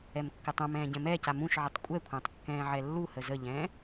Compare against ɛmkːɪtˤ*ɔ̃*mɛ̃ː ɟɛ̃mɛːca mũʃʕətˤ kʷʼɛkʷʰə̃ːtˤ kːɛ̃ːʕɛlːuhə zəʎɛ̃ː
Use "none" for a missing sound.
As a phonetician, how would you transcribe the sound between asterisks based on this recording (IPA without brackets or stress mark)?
õ